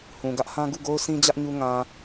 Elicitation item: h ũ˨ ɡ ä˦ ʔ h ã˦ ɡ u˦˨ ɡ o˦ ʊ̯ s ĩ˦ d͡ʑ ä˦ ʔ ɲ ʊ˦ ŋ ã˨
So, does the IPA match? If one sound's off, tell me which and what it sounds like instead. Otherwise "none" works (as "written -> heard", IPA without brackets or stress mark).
ʊ˦ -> u˦